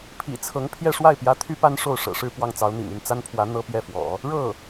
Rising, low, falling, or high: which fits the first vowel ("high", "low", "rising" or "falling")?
low